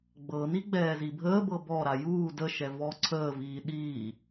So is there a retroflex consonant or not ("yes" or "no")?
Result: no